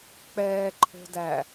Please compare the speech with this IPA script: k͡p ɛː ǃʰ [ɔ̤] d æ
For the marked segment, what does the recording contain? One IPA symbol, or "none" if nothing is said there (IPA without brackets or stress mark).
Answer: o̤